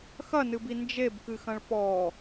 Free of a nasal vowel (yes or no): no